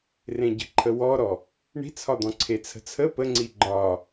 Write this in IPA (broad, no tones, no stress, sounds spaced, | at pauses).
r ẽ ɟ ə̤ ǃʰ ə w ɔ ɾ ɔ | ɳ i̤ t͡sʰ ɒ d̪ ɔ̃ ǀʰ e t͡sʰ ə̤ t͡sʰ ə p ə ŋ͡ǀ i ɡ͡ǃ ɒ